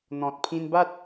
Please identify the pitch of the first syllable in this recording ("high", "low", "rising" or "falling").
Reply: low